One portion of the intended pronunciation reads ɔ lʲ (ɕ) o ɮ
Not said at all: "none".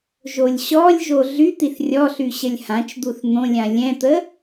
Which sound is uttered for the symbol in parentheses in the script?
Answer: ʒ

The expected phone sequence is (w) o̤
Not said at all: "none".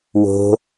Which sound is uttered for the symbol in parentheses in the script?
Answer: w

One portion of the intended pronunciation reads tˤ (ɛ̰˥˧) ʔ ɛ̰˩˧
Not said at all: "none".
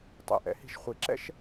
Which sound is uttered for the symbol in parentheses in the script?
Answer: ɛ̰˧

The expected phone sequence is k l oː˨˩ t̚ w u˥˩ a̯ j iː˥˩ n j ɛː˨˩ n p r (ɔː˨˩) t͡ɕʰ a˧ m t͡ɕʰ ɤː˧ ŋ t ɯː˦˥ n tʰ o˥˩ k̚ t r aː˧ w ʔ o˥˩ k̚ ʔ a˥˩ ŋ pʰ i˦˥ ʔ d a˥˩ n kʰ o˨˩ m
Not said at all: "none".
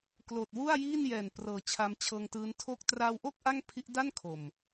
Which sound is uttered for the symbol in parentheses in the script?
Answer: ɤː˨˩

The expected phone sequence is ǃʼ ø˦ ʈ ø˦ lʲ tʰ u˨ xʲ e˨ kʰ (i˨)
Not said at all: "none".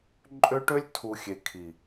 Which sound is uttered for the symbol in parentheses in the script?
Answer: i˨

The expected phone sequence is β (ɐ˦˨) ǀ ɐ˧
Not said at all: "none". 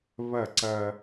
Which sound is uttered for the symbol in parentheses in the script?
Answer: ɐ˦˨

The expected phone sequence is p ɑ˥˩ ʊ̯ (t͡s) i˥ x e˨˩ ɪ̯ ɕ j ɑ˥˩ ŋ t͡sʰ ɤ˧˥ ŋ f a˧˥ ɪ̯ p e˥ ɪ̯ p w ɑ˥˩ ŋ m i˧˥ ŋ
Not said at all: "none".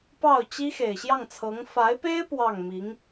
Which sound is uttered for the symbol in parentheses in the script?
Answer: t͡ɕ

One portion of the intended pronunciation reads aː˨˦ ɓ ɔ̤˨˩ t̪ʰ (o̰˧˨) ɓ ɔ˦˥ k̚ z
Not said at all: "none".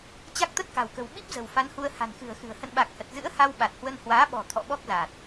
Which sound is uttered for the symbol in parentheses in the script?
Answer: ɔ̰˧˨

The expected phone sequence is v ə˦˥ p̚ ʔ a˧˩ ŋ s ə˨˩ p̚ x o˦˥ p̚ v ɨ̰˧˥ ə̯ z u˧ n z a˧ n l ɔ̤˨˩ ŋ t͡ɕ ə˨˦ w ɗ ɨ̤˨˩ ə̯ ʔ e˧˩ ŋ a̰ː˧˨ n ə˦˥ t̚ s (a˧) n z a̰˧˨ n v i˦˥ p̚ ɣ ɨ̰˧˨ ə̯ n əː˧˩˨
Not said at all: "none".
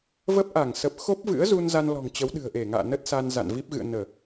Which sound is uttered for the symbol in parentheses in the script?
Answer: a˧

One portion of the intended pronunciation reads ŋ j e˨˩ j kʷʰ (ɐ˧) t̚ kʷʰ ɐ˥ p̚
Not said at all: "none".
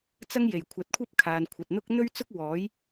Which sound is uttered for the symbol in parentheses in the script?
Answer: ɐ˨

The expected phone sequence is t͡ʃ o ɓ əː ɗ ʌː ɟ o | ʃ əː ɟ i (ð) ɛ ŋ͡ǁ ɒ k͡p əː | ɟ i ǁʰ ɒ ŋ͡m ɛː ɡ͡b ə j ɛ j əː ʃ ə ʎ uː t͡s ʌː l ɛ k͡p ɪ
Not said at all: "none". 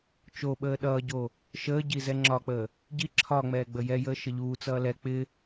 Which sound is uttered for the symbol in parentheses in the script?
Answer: z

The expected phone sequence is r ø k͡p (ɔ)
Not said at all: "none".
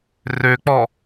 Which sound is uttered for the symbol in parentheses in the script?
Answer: ɔ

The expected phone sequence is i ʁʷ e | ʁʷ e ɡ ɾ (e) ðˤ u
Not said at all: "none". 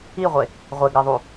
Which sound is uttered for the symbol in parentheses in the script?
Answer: ɛ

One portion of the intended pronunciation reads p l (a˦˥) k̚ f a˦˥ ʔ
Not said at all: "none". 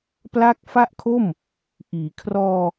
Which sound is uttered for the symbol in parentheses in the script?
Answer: a˦˥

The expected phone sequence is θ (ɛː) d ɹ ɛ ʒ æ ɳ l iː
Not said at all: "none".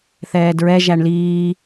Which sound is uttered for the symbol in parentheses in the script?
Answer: ɛː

